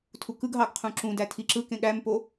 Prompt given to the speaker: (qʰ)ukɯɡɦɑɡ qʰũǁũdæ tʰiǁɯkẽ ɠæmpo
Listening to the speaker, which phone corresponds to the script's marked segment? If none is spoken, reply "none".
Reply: tʰ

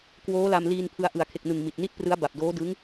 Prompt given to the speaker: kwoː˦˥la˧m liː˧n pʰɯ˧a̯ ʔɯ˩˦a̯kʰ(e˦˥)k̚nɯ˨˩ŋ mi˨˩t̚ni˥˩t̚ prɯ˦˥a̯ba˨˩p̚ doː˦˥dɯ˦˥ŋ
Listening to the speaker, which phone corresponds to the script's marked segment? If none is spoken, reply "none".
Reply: e˨˩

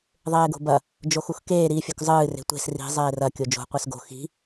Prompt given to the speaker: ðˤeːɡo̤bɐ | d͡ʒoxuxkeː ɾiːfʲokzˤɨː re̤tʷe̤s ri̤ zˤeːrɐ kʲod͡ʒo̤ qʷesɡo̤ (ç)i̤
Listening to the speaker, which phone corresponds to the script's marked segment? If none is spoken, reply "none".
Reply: x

